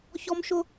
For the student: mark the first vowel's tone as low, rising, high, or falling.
high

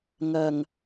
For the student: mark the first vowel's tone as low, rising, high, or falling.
low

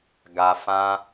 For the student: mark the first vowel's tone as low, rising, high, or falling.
low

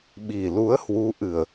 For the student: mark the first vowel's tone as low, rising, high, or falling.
low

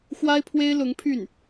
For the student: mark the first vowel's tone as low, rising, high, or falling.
high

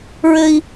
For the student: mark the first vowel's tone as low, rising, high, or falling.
high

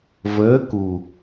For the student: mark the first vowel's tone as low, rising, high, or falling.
rising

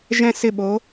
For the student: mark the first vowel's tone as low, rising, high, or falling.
falling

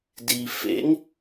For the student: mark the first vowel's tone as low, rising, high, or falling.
low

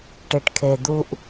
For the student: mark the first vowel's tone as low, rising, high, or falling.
low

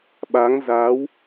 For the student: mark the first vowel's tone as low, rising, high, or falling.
rising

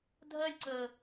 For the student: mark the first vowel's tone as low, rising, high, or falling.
high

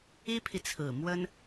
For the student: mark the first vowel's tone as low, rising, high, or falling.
high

